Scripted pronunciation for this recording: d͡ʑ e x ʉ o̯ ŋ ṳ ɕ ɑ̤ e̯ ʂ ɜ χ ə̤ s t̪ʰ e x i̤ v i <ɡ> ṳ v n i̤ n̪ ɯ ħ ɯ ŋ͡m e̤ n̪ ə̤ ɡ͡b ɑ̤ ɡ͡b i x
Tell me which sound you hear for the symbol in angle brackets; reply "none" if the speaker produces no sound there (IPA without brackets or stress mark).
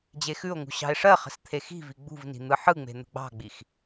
ɡ͡b